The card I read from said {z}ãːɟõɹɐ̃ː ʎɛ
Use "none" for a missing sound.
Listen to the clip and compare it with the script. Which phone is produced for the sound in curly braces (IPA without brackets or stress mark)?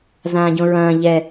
z